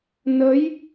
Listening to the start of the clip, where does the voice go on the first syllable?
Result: rising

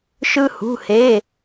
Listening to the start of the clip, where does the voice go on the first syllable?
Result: high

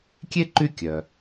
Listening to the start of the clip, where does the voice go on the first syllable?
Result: high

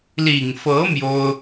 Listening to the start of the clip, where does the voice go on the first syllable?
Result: low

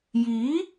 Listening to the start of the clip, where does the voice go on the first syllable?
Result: rising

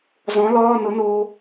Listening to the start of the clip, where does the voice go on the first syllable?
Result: rising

